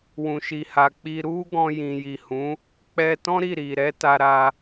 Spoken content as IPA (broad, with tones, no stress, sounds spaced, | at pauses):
w ũ˨ ʃ i˨ h a˨ k͡p i˧ ɾ u˦ ɡ ɔ̃˧ j ĩ˨ j i˨ h ũ˨˦ | k͡p ɛ˧ t ɔ̃˦ ɾ i˦˨ ɾ i˨ ɾ ɛ˨˦ t a˧ ɾ a˧